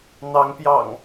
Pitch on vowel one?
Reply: rising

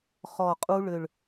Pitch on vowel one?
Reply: low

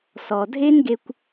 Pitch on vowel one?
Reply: low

